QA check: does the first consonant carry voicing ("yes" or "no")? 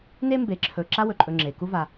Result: yes